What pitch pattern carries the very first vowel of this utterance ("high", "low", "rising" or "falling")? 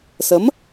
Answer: rising